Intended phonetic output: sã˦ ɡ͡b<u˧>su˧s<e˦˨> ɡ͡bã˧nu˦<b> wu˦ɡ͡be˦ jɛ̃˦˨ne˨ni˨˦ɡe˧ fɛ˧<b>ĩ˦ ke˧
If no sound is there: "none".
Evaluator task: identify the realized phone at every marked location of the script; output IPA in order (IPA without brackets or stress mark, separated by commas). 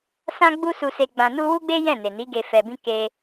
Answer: u˦, e˧, none, b